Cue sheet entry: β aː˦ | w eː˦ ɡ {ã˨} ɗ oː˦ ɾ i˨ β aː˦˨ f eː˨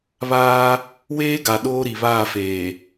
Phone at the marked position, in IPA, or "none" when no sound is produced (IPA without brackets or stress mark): a˨